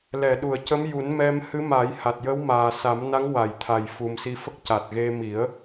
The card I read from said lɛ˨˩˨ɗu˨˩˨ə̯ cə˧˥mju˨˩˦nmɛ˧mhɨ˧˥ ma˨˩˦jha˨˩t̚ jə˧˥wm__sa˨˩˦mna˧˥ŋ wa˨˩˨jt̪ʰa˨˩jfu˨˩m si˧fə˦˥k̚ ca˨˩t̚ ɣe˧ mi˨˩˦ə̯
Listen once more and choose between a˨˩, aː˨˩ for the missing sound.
aː˨˩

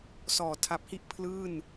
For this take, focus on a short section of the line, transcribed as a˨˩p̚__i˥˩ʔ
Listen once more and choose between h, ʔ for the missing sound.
h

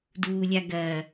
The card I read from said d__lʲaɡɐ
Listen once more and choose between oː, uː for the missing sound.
uː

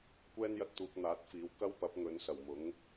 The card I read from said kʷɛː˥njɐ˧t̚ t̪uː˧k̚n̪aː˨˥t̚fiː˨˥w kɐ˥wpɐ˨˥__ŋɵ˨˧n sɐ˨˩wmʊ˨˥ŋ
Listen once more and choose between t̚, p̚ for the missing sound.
p̚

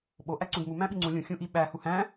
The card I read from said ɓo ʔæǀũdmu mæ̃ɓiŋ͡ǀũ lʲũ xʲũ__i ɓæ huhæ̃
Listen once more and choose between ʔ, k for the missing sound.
ʔ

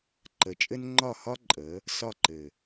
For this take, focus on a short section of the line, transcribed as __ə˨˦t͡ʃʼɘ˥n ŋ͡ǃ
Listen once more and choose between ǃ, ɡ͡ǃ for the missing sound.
ǃ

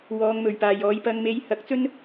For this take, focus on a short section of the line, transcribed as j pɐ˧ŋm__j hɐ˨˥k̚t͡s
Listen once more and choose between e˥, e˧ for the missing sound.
e˧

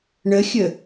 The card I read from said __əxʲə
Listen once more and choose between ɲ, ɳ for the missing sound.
ɳ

